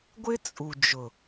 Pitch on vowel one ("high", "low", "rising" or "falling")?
high